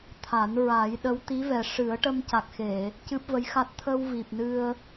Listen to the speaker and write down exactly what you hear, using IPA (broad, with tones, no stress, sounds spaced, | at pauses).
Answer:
t̪ʰ a˨˩˦ n ɹ a˨˩˦ j ɗ ə˧˥ w t̪ i˧˥ v ɛ˨˩ ʂ ɨ˨˩˦ ə̯ ʈ ə˧ m c a˨˩ k̚ x e˨˩˨ | c ɨ˦˥ p̚ v ə˧˥ j x a˦˥ t̚ t̪ʰ ə˧ w v i˨˩ p̚ n ɨ˧ ə̯